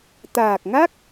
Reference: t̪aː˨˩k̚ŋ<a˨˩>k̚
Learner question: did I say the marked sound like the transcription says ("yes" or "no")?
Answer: no